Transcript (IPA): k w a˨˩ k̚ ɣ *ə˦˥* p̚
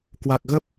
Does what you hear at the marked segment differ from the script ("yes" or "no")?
no